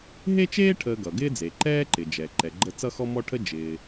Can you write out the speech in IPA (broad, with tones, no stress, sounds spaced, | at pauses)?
ɦ e˥ t͡ʃ eː˥ ʈʰ əː˧ ɡ ʌ˩ ɡ ɪː˥ d͡z e˩ ǃ ɛː˥ ǃ ɪ˩ d͡ʒ ɛ˩ ǃ ɛ˩ ɡ͡ǃ ə˧ t͡s ʌ˥ x ɔ˥ m ɔ˥ ʈʰ ə˥ d͡ʒ ɪː˩